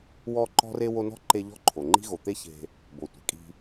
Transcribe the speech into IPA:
wɔ˦ ǃɔ̤˥re˥ wo˦nɔ̤˥ ǃe˦ʎɔ̤˥ ǃʰo˩ ŋ͡ǃi̤˦ɣo˩t̪e˦ çe̤˨ | bo˩tʷe̤˩kʼi̤˨

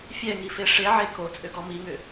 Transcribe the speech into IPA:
fʲɛŋife ʂeʕe kot͡sʼʏɡɔ miŋʏ

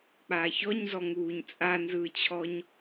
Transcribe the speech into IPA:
k͡paçɔɲzɔ ŋuːɲt͡sʼanzɯːt͡ɕʰɔɲ

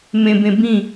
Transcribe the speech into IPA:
mẽbẽ bĩ

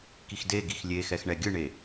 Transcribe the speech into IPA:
kixde ɡixlʲexɛx ɳɛɡʲɯɳe

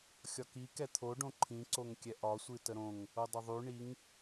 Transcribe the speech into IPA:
xʲɒki kɛt̪ʰo ɖõǃʰĩ ǀoŋkʲɛʔɒ sʷɨtəɾõŋ | odˤəðˤy ɳiŋ

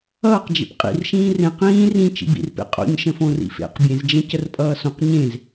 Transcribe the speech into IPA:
ʌːqd͡ʒḛp qʼḭrʃĩː rẽ qĩː rĩ t͡ʃḭbḭrpḛ qʼo̰ɲ ʃə̃fõrḭfḛq bʲẽzd͡ʒə̃cər pʼʌːsõq ɲẽz

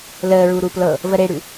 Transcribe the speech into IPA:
ləːɹuɾu plɤ | vəɾeɽʉ

